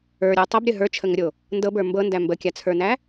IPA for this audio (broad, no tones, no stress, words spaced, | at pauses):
ə˞ɾʲo tˤəbɾʲə ɦə˞t͡ʃʰəŋəɾʲo | ndɤbə˞ mbɤndæ mbəkʲat͡sʰə˞næ